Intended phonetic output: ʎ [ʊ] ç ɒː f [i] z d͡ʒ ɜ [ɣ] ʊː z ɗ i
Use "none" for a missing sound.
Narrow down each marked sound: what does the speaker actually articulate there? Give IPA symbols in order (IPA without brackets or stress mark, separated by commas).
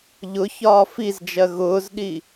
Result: ʊ, i, ɣ